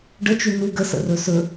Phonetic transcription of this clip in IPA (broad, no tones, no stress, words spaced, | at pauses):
ɖət͡ʃʉ nu ɡəsə̰rɵ sɵ